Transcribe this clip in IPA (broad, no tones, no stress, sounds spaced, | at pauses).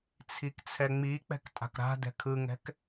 t͡sʰ i k t͡sʰ ɛ ŋ͡m i k͡p ɛ̤ k tʼ a̤ k ɾ a̤ d ɛ̤ kʰ ɯ ŋ ɛ̤ k